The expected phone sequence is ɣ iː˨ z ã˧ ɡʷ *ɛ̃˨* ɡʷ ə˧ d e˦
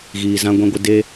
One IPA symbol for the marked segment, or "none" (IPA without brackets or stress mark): ɛ̃˧